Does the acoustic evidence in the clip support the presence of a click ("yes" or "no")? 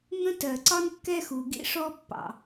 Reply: yes